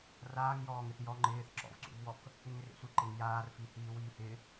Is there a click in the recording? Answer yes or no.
yes